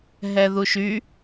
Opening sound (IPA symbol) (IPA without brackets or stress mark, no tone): ɦ